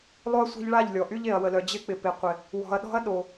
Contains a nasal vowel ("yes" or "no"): no